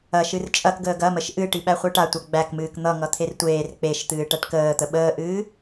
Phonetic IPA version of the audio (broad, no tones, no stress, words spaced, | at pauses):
ɐʃɨr t͡ʃʼɐkɡəːɡ ɐməʃ ʔɨʈi ɓæχʷɨʈatʷʌ ɡ͡bækmɨːk n̪ʌŋʌ t̪ʰertʷeːr k͡peʃ t̪ɨːʈæʈkəːt̪ə ɓəːʔɨː